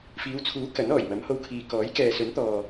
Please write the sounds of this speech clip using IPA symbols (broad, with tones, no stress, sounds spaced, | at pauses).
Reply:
f iː˨˧ w t͡sʰ uː˨˥ k ɐ˨˥ n ɔː˨˩ j m ɐ˨˥ m h o˧ w kʰ iː˨ k ɔː˨˥ j k ɛː˨ s ɵ˨˥ n t̪ ɔː˨